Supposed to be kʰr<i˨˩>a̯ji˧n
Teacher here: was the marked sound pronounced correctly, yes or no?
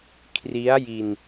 no